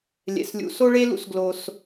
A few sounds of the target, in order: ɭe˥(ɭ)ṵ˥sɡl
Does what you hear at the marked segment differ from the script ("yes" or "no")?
yes